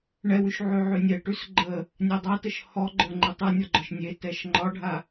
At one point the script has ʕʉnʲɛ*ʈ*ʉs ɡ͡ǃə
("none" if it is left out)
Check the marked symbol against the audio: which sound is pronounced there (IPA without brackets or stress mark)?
ʈ